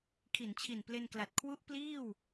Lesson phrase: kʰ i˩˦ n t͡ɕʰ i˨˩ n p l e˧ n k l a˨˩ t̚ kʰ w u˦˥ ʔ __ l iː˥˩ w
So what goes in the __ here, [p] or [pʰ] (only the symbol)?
p